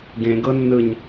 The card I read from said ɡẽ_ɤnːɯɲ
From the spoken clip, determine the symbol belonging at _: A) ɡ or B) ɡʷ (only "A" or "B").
A